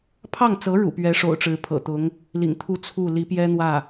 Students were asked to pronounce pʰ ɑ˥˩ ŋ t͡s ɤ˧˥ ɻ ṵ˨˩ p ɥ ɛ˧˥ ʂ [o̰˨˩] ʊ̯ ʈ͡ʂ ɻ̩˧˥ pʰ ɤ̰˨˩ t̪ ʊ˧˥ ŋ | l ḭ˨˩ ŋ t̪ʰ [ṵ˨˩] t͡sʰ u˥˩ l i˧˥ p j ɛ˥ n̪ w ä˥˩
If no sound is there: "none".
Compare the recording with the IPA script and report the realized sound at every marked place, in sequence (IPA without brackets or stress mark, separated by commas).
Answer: o̰˨˩, u˥˧